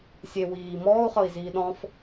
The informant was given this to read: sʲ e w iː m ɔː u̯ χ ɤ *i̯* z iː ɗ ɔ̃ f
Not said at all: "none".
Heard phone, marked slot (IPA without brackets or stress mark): i̯